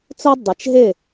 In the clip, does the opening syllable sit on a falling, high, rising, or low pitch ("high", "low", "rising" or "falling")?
high